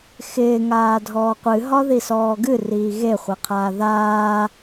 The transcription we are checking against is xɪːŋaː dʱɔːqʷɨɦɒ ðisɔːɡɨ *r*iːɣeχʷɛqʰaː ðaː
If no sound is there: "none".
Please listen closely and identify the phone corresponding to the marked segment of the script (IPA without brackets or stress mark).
r